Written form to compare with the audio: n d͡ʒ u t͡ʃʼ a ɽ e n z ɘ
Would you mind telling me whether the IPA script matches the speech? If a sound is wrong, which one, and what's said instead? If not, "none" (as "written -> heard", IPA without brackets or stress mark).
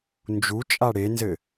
none